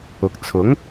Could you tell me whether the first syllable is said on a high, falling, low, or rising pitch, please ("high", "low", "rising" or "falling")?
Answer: low